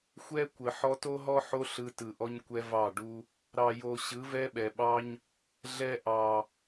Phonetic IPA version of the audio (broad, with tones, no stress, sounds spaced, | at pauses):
xʷ ɛ˦ kʷ ə˨ ħ ɔ˧ t o˦ ɦ ɔ˦ ħ o˦ ɬ ɯ˧ t ɯ˨ ʔ ɔ˧ ɲ kʷ ɛ˧ v ɑ˦˨ ɖ u˦ | ɾ ɑ˨ j o˨ ɕ ɯ˨˦ v ɛ˦ ɓ ɛ˨ ɓ ɑ˦ ɲ | ɮ ɛ˧ ʔ ɑ˨